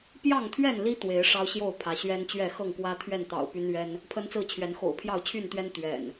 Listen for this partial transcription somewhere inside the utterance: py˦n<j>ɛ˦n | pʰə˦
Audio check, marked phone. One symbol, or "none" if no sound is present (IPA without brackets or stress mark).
ɥ